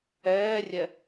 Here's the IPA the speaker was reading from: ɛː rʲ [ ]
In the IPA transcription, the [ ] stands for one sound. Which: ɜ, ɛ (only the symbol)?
ɛ